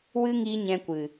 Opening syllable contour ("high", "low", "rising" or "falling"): high